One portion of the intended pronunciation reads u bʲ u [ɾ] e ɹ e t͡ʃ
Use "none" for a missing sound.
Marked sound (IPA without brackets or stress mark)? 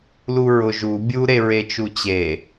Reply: ɾ